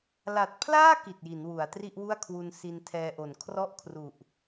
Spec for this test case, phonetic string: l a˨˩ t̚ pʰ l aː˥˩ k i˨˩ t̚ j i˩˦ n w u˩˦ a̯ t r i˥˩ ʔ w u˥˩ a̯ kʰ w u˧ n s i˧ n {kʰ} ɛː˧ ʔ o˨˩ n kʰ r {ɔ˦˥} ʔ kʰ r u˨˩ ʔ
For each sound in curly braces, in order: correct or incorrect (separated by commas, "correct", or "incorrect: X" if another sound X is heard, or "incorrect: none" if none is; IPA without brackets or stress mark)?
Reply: incorrect: tʰ, incorrect: ɔ˥˩